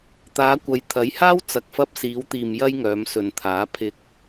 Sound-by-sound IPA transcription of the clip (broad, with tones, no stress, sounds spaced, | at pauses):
t̪ aː˨˧ kʷ ɐ˨˧ j t̪ʰ ɐ˨˥ j h aː˥ w t͡s ɐ˨ k̚ f ɐ˧ p̚ s iː˨˧ w t̪ iː˨ m j ɐ˥ j ŋ œː˨˧ m s ɵ˨ n t̪ʰ aː˨˥ pʰ ɪ˧ k̚